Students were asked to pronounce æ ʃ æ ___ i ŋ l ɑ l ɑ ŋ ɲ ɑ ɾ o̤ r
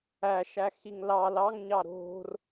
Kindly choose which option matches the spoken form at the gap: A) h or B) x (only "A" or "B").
B